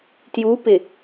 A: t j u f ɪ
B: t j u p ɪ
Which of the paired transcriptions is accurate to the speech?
B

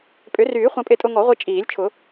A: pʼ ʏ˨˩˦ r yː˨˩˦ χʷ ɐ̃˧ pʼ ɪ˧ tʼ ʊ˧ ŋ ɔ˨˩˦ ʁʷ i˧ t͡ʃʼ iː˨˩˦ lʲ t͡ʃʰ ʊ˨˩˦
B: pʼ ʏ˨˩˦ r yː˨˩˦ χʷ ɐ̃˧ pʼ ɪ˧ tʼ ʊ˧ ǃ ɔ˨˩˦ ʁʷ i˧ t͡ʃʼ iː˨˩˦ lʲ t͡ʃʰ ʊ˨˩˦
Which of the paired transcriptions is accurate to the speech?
A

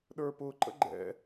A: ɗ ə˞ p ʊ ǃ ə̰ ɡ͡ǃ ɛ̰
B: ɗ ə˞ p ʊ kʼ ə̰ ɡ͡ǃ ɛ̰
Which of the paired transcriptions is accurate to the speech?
A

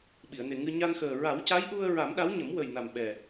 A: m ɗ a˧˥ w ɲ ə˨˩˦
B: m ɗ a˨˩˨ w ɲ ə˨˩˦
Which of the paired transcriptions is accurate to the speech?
A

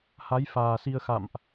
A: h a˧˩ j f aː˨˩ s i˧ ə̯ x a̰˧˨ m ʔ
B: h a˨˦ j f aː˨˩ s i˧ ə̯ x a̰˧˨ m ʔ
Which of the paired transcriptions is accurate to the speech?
B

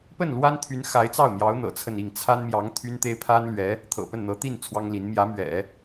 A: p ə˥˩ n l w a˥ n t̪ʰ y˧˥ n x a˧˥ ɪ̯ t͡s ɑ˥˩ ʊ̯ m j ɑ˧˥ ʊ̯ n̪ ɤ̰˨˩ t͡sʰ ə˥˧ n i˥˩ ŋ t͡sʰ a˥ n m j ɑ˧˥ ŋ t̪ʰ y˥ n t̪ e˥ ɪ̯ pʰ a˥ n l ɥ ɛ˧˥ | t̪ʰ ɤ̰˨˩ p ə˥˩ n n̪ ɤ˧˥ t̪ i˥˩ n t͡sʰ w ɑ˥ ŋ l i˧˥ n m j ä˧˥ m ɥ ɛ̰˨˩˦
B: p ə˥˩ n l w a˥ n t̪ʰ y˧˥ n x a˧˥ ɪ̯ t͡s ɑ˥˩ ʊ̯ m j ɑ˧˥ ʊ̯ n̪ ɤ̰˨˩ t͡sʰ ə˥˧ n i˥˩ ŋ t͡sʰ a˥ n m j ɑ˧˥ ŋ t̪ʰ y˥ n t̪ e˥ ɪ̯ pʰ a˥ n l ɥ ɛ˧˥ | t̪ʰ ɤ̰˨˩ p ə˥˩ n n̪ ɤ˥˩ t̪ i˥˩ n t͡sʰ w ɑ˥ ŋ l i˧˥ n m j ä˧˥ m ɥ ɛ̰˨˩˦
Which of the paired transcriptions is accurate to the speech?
A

